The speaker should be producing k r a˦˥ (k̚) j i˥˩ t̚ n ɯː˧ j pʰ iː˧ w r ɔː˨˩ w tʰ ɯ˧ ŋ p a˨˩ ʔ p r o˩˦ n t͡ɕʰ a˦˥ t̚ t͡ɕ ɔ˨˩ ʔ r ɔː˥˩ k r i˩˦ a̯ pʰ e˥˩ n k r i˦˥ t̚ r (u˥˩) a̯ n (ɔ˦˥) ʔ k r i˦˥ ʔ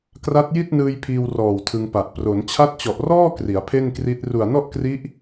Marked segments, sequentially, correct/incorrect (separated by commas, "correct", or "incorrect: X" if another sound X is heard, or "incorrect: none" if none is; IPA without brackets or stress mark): incorrect: t̚, incorrect: u˨˩, incorrect: ɔ˥˩